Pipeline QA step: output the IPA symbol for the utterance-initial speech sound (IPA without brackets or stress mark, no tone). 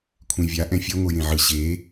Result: kʷʰ